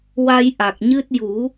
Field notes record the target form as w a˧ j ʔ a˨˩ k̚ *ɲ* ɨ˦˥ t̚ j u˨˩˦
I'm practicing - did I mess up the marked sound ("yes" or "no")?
no